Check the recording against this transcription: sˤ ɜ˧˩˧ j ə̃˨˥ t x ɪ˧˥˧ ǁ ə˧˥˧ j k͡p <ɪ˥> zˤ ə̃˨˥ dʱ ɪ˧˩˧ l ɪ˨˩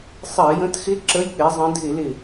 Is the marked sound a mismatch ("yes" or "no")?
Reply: yes